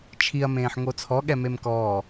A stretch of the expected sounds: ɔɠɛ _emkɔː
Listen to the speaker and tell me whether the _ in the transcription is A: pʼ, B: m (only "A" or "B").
B